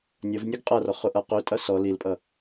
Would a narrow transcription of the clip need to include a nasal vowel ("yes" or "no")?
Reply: no